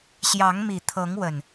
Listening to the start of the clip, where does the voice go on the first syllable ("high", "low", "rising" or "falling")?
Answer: rising